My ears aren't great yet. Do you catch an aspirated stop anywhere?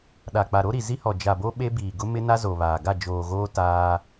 no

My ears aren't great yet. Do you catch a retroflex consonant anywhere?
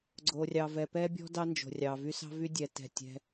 no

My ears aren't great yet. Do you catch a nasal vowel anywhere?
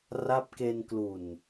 no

